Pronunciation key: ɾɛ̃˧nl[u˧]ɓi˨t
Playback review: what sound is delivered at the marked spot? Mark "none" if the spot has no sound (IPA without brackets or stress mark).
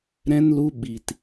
u˧